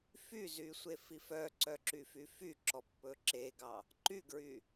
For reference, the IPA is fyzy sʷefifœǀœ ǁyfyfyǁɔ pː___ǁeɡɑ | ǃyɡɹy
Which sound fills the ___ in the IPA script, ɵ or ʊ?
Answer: ɵ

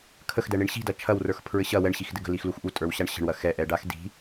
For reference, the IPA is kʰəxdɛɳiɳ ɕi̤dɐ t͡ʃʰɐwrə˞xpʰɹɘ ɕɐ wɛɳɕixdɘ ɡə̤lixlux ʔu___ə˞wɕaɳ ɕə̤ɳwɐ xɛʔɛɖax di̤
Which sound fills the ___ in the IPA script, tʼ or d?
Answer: tʼ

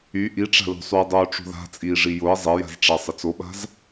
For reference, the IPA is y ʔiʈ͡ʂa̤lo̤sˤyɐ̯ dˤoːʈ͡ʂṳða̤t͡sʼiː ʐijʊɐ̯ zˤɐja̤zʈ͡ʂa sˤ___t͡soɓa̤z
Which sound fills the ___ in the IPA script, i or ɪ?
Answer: ɪ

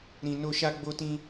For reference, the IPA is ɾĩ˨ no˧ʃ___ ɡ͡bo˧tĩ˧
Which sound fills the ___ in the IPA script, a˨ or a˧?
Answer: a˧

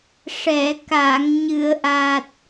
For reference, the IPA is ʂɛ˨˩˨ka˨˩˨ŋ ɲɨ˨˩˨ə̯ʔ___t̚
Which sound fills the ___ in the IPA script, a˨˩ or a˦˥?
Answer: a˨˩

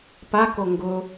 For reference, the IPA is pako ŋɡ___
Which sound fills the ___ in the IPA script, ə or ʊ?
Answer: ʊ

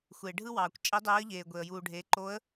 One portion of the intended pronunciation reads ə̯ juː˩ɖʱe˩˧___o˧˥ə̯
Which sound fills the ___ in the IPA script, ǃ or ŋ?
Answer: ǃ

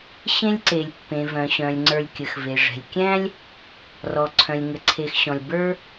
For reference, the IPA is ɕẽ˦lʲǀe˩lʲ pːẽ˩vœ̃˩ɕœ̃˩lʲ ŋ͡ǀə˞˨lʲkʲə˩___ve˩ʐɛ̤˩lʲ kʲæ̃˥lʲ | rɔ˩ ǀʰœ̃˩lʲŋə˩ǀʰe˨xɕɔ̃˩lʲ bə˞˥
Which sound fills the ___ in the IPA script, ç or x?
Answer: x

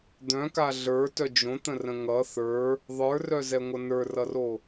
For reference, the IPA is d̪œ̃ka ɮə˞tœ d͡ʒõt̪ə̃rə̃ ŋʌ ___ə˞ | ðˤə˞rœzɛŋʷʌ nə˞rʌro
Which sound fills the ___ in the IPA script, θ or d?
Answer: θ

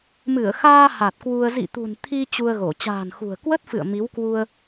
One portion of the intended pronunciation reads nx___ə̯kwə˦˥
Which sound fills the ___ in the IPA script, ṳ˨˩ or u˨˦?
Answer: ṳ˨˩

